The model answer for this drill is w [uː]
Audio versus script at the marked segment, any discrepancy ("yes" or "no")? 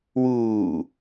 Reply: no